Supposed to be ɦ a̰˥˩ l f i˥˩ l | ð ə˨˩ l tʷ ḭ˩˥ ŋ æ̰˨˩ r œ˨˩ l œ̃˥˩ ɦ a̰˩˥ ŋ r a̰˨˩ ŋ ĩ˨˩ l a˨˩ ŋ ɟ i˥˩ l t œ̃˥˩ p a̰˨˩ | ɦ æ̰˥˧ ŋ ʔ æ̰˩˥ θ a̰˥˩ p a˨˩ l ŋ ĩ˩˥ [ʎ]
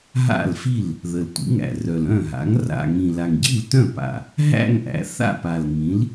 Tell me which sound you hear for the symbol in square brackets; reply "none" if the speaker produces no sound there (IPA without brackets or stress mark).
l